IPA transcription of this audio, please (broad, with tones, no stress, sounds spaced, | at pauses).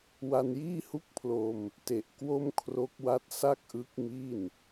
w a˧ n j iː˥˩ h u˥˩ k̚ pʰ l o˧ m | t e˨˩ ʔ k w o˥˩ m kʰ r o˦˥ k̚ w a˦˥ t̚ s a˥˩ k̚ ʔ ɯ˦˥ k̚ m i˥˩ n